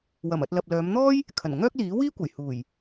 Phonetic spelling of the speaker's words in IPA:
w ɐ˨˩ m ɐ˨ t̚ l ɐ˨ p̚ l œː˨˧ m n̪ ɔː˥ j | kʰ ɐ˨˩ n ŋ œː˥ k̚ l iː˨˥ w iː˥ kʷ ɐ˨˩ j h uː˨˩ j

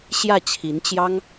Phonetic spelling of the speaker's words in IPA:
ɕ j ä˥˩ t͡ɕʰ i˧˥ n t͡ɕ j ɑ˥ ŋ

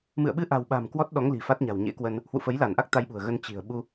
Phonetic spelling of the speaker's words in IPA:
m ɨ̰˧˨ ə̯ ɓ ɨ˧ ʔ a̤˨˩ w ɓ a̤˨˩ m k w ɔ˦˥ t̚ ɗ ɔ˨˦ ŋ l i̤˨˩ f a˦˥ t̚ ɲ a̤˨˩ w ɲ ḛ˧˥ k w ə˧ n | h w ṵ˧˨ f ə˨˦ j l a˧˩ n ʔ a˦˥ k̚ t̪ a˧ j ɓ ṳ˨˩ ə̯ ɣ ə˧ n t͡ɕ i̤˨˩ ə̯ ɓ u˧

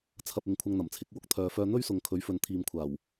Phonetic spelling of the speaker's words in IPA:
t͡sʰ ɐ˧ p̚ ɪ˨ ŋ kʷʰ ɐ˧ ŋ n̪ ɐ˨˩ m t͡sʰ ɪ˨˥ k̚ w ʊ˨ k̚ t̪ʰ œː˨ f œː˧ n̪ ɵ˥ ɥ s ʊ˨ ŋ kʰ ɵ˨˥ ɥ f ɵ˨˧ n t̪ʰ iː˨ m kʷʰ aː˨˩ w

